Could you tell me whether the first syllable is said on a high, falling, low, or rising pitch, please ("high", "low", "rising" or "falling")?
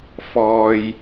low